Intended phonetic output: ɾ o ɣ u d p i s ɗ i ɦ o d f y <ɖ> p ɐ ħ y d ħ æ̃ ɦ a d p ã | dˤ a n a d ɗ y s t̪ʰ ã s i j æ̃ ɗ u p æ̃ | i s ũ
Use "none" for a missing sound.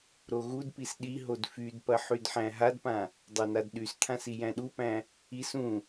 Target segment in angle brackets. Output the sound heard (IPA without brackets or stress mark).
d